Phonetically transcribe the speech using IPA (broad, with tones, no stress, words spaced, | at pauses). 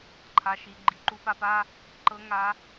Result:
ǃʰa˨ʃi˨ ɡ͡ǃi˨ǃu˧pa˧pa˦ | ǃɤ˦ŋa˦